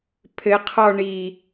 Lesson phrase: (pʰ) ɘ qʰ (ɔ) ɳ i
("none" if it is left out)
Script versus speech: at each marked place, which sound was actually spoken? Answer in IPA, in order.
pʰ, ɔ

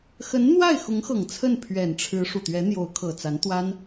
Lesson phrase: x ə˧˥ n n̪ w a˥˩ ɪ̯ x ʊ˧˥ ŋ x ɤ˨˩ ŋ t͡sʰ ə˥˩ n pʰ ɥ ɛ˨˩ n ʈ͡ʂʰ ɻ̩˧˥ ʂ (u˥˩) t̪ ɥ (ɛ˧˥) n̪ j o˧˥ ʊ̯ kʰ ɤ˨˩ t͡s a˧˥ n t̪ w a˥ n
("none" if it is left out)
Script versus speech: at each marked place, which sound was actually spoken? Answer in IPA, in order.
u˨˩, ɛ˧˥

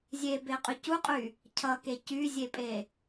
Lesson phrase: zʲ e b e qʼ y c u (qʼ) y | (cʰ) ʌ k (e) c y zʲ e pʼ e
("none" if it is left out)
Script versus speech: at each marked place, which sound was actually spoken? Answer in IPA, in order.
qʼ, cʰ, e

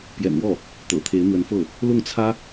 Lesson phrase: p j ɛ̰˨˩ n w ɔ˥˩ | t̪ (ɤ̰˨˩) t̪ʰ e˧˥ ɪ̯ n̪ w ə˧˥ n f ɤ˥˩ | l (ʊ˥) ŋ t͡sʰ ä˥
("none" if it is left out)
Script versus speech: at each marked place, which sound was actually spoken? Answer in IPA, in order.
ɤ̰˨˩, ʊ˥˩

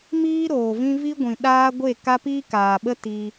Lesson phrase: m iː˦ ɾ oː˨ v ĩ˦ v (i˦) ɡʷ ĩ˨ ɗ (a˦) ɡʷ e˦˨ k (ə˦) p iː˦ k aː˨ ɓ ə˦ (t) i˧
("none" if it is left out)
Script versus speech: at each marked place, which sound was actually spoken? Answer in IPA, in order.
i˦, aː˦, a˦, t

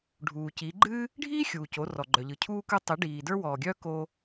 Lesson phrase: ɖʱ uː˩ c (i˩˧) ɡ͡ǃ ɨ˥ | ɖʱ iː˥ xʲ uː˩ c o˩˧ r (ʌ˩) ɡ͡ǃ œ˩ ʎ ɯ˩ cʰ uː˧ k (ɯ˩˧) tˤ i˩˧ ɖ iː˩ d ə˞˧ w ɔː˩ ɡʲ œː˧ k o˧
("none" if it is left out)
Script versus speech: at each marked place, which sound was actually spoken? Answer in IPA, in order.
i˩˧, ɔ˩, ɯ˧

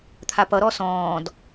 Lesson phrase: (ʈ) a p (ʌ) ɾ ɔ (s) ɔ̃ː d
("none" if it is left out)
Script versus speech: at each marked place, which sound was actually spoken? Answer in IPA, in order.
t̪ʰ, ʌ, s

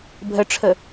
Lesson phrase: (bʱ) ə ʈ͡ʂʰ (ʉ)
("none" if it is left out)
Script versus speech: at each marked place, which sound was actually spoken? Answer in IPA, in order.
bʱ, ə

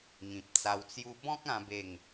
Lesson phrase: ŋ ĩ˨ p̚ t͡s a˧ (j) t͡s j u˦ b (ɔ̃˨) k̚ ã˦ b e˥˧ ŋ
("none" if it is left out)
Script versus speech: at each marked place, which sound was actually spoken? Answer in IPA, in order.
w, ɔ̃˦

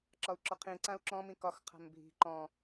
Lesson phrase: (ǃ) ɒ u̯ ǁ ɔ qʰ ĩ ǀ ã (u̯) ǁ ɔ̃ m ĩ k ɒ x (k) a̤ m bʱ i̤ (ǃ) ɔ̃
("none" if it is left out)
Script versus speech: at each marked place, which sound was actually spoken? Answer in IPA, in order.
ǁ, u̯, qʰ, ǃ

